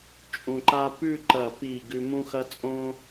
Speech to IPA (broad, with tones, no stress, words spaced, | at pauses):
t͡ʃʼũ˧ǃa˥ pʉ˥˧ǃɐ˧˩pi˧˩ ɡʉ˧mũ˥xɐ˥ t͡sʼõ˥